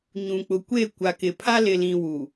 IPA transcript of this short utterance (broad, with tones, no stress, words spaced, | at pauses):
ɲũ˨k͡pʊ˨kʷe˦˨ kʷa˨kɪ˨pʰa˦ lɪ˨lĩ˨ wu˨